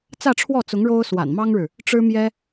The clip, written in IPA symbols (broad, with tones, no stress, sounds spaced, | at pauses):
t͡s ä˥˧ ʈ͡ʂʰ w ɔ˥˩ t͡s ʊ˧˥ ŋ ɻ o˥ ʊ̯ s w a̰˨˩ n m ɑ˥ ŋ ɻ ɻ̩˨ | ʈ͡ʂ ɻ̩˥ m j ɛ˥